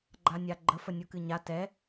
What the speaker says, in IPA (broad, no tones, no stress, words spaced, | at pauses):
ɡ͡ǃanʲaɡ͡ǃə fənʲukɨɲa tɛ